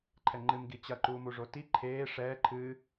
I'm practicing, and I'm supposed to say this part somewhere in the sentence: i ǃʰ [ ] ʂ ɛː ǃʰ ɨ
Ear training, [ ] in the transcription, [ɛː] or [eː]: eː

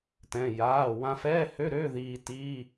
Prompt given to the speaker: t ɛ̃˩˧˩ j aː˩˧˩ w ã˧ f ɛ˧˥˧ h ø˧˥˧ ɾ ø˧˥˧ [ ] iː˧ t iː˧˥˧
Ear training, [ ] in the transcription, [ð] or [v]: ð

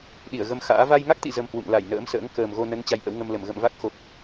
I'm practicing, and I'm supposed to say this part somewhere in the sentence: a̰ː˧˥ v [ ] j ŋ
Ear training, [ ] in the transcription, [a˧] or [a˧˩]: a˧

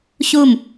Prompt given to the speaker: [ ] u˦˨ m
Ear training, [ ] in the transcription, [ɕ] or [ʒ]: ɕ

